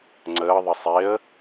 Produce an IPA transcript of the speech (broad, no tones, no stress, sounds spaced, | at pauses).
ŋ͡ǀ əː ðˤ ə sˤ e ə̯